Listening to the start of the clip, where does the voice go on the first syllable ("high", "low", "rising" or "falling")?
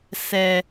low